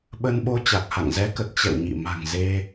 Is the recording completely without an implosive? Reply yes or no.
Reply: no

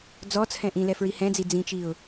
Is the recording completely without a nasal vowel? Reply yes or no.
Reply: no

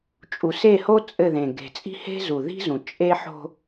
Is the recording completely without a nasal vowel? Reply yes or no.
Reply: no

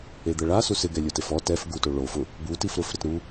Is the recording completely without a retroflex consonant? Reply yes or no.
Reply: no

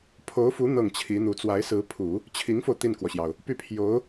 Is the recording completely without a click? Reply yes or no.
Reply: yes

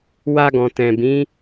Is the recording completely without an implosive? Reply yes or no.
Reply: yes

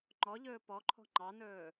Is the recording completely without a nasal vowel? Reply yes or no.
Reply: yes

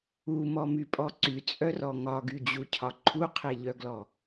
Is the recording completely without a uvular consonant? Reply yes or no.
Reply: no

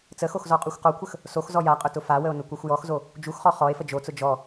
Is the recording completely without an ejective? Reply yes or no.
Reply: no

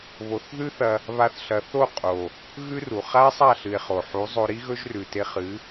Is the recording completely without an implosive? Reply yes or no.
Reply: yes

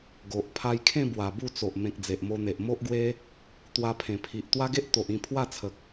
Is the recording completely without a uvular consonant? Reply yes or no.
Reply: yes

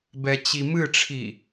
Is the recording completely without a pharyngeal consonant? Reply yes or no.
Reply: yes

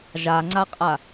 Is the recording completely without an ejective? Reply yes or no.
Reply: no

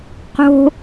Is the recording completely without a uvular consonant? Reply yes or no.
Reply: no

